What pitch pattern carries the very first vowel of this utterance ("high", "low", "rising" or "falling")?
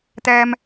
high